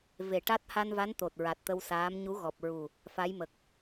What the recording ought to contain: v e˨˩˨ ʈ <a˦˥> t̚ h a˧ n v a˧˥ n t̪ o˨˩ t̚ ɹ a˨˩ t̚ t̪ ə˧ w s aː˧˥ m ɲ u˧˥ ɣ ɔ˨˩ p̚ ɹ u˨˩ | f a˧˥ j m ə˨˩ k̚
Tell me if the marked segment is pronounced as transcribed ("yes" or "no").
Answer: yes